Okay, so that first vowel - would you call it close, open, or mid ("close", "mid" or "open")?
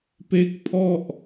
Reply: mid